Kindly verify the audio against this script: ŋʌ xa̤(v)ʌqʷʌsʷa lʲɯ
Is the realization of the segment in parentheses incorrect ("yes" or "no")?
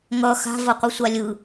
no